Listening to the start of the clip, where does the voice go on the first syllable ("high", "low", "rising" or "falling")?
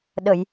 low